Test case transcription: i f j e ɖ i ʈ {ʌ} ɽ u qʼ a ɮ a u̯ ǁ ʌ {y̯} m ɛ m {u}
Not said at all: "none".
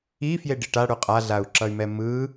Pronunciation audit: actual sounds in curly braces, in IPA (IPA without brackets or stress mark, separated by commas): a, y̯, ɯ